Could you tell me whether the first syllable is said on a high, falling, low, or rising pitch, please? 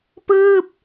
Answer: falling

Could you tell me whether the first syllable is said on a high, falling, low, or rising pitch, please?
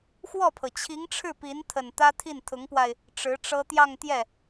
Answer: falling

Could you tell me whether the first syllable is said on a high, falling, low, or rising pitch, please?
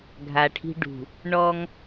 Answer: low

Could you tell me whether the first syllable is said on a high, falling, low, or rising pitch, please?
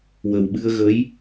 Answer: low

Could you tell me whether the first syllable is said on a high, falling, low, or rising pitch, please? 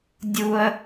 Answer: high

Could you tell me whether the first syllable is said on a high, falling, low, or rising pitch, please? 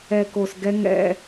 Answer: low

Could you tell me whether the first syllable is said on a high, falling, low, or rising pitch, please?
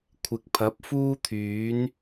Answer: low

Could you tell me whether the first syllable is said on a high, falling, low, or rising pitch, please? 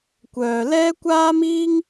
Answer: low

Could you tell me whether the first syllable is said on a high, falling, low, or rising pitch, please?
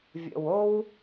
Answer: low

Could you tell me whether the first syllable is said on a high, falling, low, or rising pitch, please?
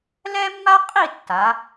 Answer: high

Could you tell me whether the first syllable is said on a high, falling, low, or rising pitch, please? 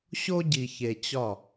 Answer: high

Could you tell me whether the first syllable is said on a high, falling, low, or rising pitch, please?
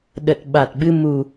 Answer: low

